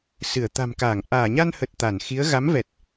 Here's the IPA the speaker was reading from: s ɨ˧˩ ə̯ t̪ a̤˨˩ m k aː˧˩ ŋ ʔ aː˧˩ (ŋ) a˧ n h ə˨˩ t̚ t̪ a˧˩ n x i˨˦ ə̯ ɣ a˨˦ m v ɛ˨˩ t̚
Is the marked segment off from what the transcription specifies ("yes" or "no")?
yes